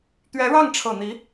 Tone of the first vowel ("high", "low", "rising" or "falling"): rising